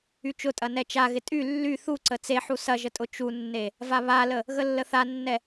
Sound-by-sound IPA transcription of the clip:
yt͡ʃʊtʼɐ nɛt͡ʃaɣɪ tʼy lːy θuǀə t͡seħu sɐʒə tʼʊt͡ʃunːe | vaβalə | ɣəlːəθanːɛ

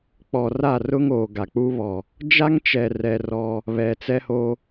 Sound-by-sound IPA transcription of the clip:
k͡pɔ˨ra˦˨rʊ˦ŋoː˨ ɡa˨k͡pu˦βɔ˨ | d͡ʒa˦ŋt͡ʃɛ˨rɛ˨ rɔ˦ | βɛ˨t͡sɛ˦ho˦

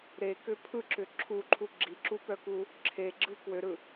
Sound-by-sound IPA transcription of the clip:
ɾekʏ pʰɯǁʏ ǁʰuǃʰu ɡ͡ǁiǁupœku | ǁʰeɡ͡ǁɯ kwøɾɯ

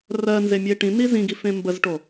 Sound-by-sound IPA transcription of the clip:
rɜnzemʲe ʈĩni zĩɡifẽ mbəzʈo

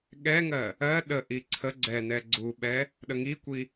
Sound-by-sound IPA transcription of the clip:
ɠɛŋɜ | ɜ ɗəʔi ǀʰə ɡ͡ǀɛnɛ ɡ͡ǀuɓɛ | ɗəŋikʷi

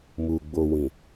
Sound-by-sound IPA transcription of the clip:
mu˨ ɡ͡bo˨wĩ˨

